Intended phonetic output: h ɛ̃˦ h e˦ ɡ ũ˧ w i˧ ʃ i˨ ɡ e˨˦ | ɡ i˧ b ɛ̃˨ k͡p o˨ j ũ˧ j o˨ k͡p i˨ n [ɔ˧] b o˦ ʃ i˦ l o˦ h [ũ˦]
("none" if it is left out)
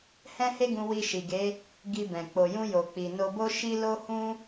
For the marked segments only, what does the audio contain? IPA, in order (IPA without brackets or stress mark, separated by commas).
o˧, ũ˦